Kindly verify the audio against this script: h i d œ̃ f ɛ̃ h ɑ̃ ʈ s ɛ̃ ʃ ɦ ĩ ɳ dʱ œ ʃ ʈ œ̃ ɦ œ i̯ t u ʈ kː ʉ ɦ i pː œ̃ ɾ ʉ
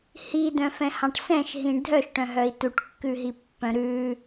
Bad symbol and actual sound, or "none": none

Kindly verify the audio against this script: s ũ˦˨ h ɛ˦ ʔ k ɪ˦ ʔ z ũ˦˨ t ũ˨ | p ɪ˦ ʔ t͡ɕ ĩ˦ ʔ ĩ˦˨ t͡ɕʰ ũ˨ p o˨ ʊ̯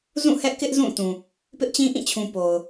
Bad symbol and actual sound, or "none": s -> z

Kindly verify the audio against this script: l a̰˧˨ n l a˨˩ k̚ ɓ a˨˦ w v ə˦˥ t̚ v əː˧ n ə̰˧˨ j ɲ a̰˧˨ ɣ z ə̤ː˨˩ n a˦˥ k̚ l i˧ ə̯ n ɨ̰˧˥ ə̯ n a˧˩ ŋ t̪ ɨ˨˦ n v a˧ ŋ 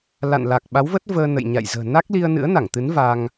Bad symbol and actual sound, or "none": ɣ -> j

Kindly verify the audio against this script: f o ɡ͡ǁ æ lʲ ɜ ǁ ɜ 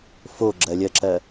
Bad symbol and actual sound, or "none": æ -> ɜ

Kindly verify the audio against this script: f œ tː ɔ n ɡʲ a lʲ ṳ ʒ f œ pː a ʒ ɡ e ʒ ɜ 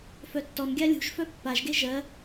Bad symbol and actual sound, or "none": none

